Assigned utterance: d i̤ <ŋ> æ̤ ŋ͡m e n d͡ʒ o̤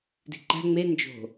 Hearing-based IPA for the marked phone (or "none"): ǃ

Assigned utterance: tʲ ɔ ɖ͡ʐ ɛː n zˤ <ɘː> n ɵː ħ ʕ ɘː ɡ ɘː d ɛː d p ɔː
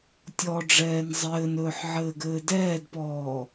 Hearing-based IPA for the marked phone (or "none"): ɘː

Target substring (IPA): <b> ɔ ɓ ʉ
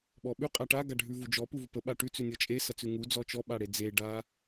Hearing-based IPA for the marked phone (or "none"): ɓ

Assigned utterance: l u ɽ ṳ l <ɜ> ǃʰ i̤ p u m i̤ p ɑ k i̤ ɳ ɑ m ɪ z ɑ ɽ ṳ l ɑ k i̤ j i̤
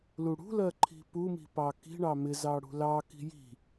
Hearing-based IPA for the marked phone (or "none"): ɜ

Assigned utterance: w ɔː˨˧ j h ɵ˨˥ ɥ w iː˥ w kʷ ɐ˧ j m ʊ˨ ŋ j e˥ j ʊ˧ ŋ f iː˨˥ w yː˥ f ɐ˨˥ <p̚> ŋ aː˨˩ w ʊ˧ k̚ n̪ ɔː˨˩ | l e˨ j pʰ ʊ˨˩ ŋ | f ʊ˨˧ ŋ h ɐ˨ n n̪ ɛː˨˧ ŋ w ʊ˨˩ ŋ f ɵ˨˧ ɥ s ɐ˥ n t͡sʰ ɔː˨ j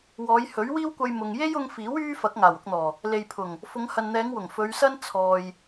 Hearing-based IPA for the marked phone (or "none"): k̚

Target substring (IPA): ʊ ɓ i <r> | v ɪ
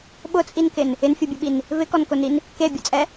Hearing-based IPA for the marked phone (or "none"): n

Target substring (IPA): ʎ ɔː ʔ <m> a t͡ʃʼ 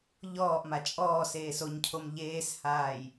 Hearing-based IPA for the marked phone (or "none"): m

